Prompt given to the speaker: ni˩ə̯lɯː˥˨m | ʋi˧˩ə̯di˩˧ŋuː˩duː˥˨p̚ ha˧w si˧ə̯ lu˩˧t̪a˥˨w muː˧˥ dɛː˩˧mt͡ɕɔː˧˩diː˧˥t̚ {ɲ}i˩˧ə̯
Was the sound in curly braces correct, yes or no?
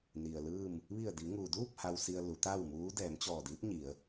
yes